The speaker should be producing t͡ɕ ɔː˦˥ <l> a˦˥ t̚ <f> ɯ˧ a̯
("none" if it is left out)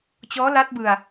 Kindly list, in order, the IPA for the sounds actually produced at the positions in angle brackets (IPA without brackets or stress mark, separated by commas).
l, b